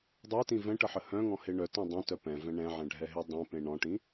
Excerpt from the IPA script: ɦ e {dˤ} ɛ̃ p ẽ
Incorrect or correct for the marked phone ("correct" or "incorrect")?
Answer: correct